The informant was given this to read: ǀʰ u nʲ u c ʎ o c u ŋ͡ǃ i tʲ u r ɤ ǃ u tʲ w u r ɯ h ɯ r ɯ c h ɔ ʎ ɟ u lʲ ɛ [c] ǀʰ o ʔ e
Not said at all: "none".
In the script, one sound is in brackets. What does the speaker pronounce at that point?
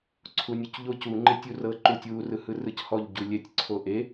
tʲ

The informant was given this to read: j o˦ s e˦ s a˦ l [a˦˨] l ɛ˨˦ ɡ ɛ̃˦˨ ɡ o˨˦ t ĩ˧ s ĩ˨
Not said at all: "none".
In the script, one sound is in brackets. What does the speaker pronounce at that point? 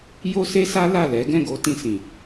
a˦˨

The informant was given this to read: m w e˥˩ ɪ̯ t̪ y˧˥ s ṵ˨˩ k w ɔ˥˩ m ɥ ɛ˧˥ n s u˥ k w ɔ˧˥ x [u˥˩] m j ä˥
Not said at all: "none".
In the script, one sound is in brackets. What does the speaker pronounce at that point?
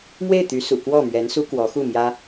u˥˩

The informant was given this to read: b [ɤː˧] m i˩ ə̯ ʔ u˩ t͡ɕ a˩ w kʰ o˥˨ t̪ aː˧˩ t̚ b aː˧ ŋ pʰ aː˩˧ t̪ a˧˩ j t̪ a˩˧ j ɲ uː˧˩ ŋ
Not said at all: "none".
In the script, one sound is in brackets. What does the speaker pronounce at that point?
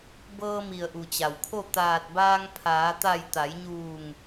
ɤː˧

